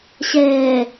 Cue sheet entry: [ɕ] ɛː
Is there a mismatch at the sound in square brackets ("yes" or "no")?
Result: no